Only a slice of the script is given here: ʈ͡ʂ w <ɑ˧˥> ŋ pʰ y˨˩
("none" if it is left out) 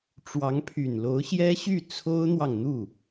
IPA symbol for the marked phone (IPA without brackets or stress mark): ɑ˧˥